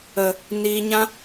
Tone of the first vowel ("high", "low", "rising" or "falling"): low